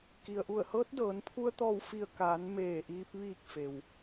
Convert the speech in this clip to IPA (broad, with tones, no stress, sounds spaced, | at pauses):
k i˩ ə̯ ʔ u˧˩ ə̯ h ɤː˧˥ t̚ d ɤː˩˧ n pʰ u˧ ə̯ t̪ ɔː˧˩ w f i˧˩ ə̯ k aː˩˧ n m eː˧˩ ʔ iː˧ p̚ ʋ iː˧˩ k̚ f e˩ w